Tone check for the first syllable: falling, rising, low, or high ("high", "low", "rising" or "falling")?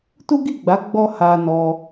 high